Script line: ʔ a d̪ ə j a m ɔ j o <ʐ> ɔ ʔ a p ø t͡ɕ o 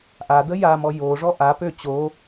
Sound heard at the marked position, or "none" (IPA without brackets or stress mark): ʐ